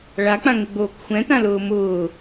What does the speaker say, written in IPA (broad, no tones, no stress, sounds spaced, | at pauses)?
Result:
ɭ a k͡p ã ŋ ɪ ɡ͡b oː k xʷ ɛ̃ t ã l ʊː m ʊː